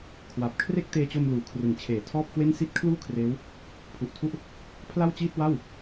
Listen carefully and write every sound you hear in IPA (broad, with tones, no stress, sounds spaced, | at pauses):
kʰ w a˨˩ p̚ kʰ r e˥˩ k̚ t eː˧ t͡ɕ o˧ m l uː˩˦ kʰ r ɯ˩˦ ŋ t͡ɕʰ eː˩˦ tʰ ɔː˥˩ p̚ k w e˥˩ n s i˥˩ t̚ kʰ l uː˥˩ kʰ r eː˦˥ w | pʰ u˨˩ ʔ tʰ u˥˩ ʔ | pʰ l a˥˩ w t͡ɕ iː˥˩ t̚ w a˥˩ w